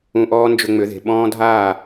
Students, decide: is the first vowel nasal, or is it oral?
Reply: nasal